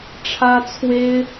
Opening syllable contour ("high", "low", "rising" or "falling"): high